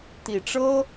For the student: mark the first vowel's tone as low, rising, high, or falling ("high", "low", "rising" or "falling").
low